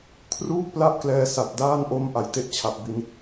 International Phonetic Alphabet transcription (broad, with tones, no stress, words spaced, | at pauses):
kʰruː˥˩k̚pla˥˩ʔklɛː˧ sa˨˩t̚daː˥˩nʔo˦˥m ʔa˩˦jte˦˥ʔt͡ɕʰa˨˩p̚bi˧n